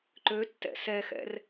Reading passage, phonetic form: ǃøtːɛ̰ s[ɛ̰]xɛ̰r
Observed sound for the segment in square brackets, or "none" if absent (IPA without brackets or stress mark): ɛ